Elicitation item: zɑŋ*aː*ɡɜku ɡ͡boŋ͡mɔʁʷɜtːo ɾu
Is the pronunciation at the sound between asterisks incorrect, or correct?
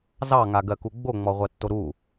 incorrect